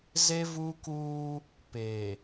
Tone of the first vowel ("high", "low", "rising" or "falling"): high